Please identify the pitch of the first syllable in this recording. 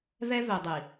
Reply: high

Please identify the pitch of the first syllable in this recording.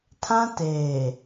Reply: high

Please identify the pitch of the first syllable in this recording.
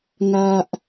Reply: high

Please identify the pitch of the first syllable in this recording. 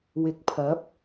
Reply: rising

